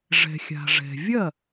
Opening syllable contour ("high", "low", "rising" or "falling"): low